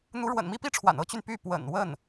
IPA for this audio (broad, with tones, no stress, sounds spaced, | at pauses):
n̪ u˧˥ ɻ w ə̰˨˩ n m i˥ p i˥˩ ʈ͡ʂʰ w a̰˨˩ n ɤ˥ t͡ɕ y˨ n p y˥˩ p w ə̰˨˩ n w ə˥˩ n